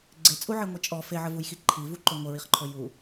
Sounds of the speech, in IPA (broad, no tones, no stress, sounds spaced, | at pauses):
ɡ͡ǀ e t͡sʼ u ʕ i ŋʷ i t͡ʃʼ ɔ f e ʕ ə v u j x i ǃʰ i v u ǃ ɵ ŋʷ ə ɹ i χ ǃʰ ɵ j u